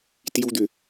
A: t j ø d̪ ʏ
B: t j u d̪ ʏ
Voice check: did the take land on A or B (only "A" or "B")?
B